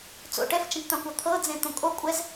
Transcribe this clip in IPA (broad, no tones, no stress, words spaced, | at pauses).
t͡so̰ ʈɛft͡ʃɛ̃kʷt̪ɑ̃kʷɑ t̪ʰɤd͡zẽ t̪õkʼo kʷʼɛz